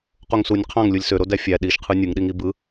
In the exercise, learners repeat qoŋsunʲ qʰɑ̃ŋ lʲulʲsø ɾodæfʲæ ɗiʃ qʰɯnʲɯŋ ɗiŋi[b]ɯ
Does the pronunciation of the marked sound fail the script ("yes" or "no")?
no